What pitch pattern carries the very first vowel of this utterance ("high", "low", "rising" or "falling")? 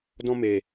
high